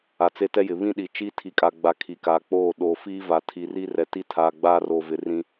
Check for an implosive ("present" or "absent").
present